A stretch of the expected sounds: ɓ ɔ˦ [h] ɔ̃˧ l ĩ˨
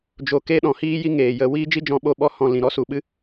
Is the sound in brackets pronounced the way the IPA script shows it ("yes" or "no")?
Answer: yes